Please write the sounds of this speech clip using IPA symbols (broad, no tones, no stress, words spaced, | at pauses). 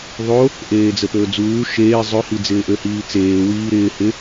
ðˤo | ʔeːd͡zəpɵːd͡zuː ʃeː zˤɵhi d͡zɪːʔøhiːt͡seː wiːɾɪː hɪ